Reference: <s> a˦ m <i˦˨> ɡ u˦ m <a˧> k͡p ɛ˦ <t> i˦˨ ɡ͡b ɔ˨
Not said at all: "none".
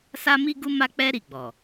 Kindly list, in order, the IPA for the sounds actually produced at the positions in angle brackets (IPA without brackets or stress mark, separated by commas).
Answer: s, i˦, a˦, ɾ